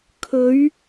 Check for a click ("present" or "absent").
absent